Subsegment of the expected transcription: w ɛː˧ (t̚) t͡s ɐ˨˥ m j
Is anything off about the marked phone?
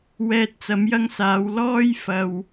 no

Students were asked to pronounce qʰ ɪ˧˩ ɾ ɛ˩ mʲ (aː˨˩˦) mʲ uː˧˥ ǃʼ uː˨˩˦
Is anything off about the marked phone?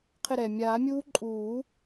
no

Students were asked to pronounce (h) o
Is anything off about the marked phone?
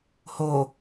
no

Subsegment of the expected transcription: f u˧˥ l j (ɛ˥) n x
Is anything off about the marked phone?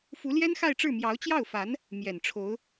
no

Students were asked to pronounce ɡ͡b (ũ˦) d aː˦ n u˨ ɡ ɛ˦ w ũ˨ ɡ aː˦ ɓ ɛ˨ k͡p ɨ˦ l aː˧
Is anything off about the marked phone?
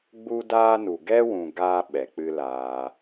yes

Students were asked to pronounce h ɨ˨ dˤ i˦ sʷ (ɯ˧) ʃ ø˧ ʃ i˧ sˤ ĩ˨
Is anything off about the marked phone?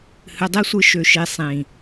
no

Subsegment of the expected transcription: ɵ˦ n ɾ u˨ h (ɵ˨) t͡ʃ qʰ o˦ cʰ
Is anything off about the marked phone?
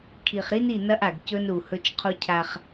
yes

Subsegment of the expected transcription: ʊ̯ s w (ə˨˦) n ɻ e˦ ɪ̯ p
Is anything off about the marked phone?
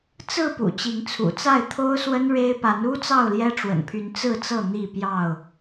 yes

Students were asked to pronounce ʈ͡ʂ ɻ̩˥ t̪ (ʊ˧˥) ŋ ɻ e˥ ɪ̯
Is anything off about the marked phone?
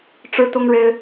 yes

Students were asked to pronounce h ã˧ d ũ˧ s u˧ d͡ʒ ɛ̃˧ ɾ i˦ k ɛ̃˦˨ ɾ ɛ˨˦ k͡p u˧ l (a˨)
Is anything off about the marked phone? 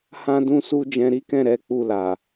no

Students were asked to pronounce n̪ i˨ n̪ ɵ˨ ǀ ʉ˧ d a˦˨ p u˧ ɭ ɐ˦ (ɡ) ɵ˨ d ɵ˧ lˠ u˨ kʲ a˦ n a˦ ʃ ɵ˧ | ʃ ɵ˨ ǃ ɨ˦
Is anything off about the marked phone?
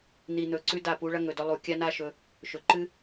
yes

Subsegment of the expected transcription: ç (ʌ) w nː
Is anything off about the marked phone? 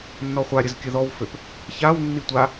yes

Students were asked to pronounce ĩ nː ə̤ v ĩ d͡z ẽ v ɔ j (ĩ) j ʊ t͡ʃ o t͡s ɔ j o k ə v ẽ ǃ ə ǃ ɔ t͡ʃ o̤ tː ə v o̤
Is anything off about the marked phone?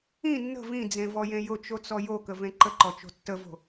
yes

